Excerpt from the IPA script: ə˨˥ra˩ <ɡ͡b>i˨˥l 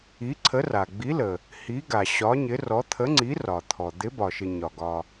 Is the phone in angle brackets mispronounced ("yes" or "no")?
no